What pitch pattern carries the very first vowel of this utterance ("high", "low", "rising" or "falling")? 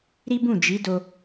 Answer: high